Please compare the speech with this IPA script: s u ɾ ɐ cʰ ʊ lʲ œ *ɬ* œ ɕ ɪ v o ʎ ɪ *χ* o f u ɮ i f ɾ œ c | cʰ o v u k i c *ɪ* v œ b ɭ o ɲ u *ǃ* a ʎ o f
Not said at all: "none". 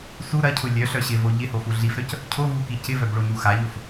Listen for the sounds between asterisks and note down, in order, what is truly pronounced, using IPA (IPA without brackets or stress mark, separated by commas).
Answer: ɬ, h, ɪ, x